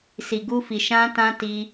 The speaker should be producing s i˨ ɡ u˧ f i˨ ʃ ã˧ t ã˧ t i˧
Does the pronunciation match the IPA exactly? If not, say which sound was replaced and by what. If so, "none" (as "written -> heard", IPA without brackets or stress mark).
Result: none